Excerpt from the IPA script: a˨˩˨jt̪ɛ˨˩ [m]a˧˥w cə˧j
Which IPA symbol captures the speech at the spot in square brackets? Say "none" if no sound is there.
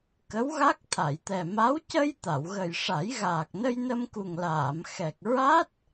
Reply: m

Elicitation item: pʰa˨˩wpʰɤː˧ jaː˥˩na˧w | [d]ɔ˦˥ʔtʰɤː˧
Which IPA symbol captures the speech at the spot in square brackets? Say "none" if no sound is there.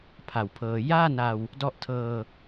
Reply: d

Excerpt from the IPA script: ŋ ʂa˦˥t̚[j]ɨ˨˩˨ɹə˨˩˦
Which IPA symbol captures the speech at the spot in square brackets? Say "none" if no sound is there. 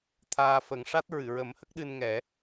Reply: ɹ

